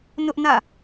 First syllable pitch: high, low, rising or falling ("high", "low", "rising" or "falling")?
high